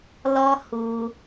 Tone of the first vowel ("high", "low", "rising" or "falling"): high